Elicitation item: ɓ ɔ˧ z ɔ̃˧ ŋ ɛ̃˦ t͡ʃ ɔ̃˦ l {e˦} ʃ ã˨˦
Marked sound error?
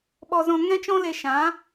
yes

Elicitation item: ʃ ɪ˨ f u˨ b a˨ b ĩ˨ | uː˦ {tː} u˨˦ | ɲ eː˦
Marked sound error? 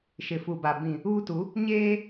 yes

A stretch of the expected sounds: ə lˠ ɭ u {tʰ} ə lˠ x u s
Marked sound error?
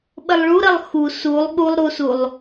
yes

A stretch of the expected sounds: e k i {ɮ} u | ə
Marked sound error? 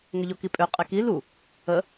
yes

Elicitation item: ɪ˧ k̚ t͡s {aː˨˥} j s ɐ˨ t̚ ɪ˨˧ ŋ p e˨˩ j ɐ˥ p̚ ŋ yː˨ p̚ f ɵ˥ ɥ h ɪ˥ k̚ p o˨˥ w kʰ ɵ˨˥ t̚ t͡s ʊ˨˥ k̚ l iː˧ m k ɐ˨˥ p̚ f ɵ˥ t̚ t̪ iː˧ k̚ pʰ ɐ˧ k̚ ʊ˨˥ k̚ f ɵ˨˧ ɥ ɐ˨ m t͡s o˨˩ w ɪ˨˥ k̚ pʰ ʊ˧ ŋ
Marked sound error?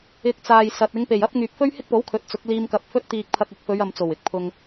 yes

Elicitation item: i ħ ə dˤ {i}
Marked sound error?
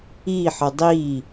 no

